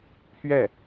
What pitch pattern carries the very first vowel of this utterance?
falling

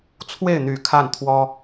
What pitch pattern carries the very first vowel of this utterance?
falling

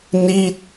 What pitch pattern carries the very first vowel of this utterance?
falling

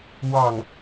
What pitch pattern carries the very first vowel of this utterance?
falling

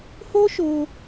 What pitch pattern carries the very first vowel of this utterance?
high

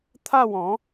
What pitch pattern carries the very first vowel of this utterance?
falling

